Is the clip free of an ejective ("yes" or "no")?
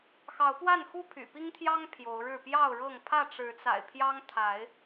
yes